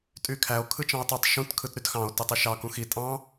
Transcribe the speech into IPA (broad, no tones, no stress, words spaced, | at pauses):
tʼykʰæo̯ kʰɯt͡ʃɑ̃o̯tˤetˤ ʃũt kʰɯtɾytxɑ̃o̯ tetˤiʃɑ kũxi tʼɑ̃